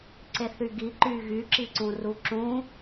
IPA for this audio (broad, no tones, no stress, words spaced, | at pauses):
ǀeθyɡiǃy ɣyǁiǀũ ruǁũ